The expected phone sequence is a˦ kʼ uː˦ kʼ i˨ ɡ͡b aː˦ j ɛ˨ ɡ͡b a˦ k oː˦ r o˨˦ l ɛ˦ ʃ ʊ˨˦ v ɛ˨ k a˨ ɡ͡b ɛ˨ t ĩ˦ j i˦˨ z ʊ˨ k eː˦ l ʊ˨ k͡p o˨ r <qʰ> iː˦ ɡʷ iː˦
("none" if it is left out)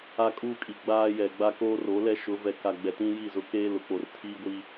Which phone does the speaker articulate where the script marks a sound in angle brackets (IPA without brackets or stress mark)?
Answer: tʰ